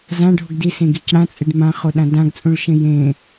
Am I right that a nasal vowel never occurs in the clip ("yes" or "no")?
no